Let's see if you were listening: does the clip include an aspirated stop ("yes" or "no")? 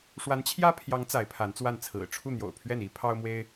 yes